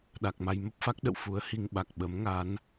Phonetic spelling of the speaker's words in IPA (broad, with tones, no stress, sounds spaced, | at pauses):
ɗ a˨˩ k̚ m a˧ j m ə˦˥ p̚ f a˦˥ k̚ ɗ ə̰˧˨ w f u˨˦ ə̯ h i˧ ŋ ɓ a˨˩ k̚ ɓ ə˨˦ m ŋ a˨˦ n